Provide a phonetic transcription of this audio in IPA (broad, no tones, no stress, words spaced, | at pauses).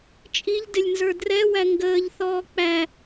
t͡ʃʼiʎdɪlʲnzə˞ drɛwæ ŋɡəːʎθɔː k͡pæ